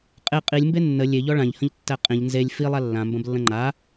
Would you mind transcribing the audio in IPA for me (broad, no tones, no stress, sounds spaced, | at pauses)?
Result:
qʼ e qʼ i lʲ m b e nː ə lʲ e ʎ ɔ ɭ ã ʎ h ə̃ ʎ tː æ qʼ ĩ ʎ n z e lʲ f i lˠ a lː ã m b ə̃ b lː ə̃ ŋ͡ǃ a